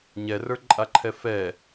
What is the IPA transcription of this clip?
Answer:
ɲɛrə˞ǃʼaǃʰɛ fɛ

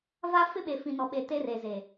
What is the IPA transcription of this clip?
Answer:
va˦ fɪ˦ɓe˨fĩ˨ nɔ˨ɓe˨ te˦reː˨ze˨

